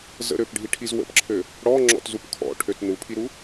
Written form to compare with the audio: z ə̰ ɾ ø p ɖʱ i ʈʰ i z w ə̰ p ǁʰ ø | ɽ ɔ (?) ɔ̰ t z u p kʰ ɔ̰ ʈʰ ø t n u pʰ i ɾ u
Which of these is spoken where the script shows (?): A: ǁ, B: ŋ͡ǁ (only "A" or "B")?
B